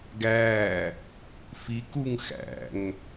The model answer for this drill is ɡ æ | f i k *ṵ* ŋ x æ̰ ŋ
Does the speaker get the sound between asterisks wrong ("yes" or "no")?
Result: yes